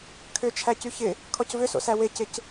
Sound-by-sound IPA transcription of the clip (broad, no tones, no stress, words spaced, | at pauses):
kʰʏt͡ʃʰæcy çɪ | kʰɔcvʏso̰sæ wecɪc